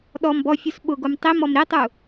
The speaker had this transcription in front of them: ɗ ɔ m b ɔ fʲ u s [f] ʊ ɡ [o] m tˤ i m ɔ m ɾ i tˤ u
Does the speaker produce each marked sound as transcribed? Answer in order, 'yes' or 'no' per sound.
no, yes

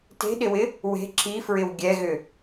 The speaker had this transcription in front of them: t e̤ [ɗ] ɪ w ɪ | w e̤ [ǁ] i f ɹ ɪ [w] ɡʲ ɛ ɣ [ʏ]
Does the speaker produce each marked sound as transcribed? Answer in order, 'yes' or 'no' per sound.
yes, yes, yes, yes

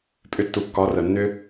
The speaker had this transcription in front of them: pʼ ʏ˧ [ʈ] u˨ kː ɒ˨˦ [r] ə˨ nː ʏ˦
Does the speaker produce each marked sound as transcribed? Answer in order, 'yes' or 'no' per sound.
no, yes

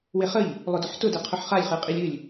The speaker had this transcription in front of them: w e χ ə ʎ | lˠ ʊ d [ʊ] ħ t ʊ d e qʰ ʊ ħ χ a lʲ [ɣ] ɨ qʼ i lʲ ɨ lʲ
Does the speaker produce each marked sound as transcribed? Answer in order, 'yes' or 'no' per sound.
yes, no

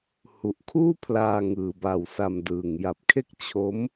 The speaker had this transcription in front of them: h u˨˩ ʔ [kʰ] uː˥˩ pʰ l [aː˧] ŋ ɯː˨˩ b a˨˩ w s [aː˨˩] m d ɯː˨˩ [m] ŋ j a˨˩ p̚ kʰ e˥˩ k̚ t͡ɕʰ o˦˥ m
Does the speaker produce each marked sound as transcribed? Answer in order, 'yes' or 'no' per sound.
yes, yes, no, no

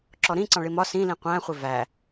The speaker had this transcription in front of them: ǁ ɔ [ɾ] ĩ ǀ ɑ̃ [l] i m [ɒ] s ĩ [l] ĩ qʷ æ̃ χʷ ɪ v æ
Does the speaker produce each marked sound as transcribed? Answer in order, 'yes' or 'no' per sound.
yes, no, yes, yes

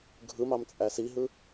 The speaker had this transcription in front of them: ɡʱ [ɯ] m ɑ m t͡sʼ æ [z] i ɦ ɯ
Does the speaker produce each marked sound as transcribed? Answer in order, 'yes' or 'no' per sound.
yes, no

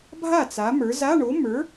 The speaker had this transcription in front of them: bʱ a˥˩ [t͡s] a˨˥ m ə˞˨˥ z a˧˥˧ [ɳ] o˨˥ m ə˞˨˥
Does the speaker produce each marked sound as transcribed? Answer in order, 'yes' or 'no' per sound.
yes, yes

